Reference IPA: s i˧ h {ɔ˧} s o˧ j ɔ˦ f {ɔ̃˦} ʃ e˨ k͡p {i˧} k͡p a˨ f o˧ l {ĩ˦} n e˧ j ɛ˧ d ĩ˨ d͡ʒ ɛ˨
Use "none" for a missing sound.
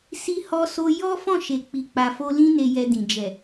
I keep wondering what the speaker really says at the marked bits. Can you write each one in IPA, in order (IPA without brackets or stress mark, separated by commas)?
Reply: ɔ˧, ɔ̃˦˨, i˨, ĩ˦